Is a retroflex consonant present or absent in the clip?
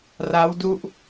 absent